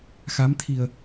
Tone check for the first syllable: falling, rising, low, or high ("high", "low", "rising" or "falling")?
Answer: rising